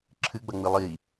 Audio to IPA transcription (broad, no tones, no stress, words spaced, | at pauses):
ǁʰɨɡ͡bɐŋ͡mɨ lˠi